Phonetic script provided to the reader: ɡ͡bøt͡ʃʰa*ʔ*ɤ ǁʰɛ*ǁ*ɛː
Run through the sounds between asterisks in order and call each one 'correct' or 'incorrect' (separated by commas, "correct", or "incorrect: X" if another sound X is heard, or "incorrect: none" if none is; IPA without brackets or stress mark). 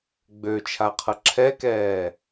incorrect: qʰ, incorrect: k